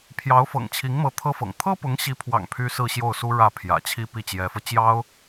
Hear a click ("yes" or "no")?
no